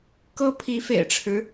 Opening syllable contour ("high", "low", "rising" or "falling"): high